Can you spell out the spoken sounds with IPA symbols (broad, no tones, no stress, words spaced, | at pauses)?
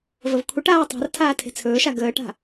vəvkʷʰəʈaː tˤa̤rtʰaː tʰe̤t͡sʰɵːʃa ɡəːʈa̤